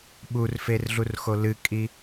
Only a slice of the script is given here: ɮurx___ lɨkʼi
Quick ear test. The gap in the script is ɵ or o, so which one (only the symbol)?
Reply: o